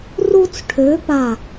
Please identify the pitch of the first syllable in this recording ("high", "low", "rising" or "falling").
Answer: high